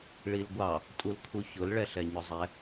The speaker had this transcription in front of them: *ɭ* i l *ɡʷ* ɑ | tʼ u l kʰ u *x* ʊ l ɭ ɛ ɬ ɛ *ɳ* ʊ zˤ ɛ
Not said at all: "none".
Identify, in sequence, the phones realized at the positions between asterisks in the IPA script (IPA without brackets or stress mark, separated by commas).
ɭ, ɡʷ, ç, ɲ